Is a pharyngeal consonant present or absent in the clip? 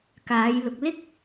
absent